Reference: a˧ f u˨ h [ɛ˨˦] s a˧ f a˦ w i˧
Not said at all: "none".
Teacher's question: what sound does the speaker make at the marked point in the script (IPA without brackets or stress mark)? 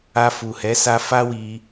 ɛ˨˦